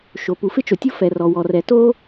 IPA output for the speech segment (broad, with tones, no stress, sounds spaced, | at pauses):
ʃ o˩ p u˩ f ɪ˥ t͡ʃ o˩ tʲ o˥ f ɛ˩ r ɔ˩ w ɔ˩ r ɛ˩ t o˥